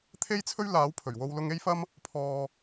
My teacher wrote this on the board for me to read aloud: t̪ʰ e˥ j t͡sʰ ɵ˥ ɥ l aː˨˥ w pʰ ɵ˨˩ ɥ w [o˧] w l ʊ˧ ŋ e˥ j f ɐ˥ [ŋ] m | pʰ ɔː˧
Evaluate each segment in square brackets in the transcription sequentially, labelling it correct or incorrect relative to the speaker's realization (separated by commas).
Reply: correct, incorrect